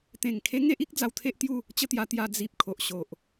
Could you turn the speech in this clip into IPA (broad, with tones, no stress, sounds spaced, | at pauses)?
t̪ ẽ˨˩ ŋ kʰ e˦ ŋ e˦ ʔ i˦ k̚ d͡z a˧ w t̪ʰ e˦ ʔ t̪ j u˥˧ | t͡ɕ ə˥˧ t̪ j a˧ t̪ j a˧ d͡z i˨ p̚ kʰ o˨ ʔ ɕ o˨ ʔ